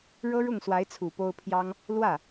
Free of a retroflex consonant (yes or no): no